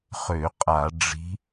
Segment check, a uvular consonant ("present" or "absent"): present